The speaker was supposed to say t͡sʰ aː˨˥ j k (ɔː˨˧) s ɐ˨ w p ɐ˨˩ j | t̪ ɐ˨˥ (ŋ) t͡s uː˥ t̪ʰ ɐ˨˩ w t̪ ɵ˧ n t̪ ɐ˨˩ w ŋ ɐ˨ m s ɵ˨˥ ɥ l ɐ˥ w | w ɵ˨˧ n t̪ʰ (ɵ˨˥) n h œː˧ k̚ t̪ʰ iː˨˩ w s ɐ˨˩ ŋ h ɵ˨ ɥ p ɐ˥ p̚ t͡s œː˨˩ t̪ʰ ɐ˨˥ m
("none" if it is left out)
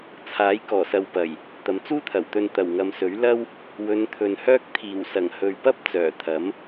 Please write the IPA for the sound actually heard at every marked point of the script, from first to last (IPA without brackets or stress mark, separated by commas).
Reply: ɔː˨˩, m, ɵ˨